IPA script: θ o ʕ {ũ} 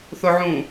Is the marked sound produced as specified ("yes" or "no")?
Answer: yes